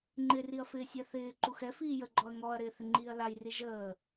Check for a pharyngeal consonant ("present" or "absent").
absent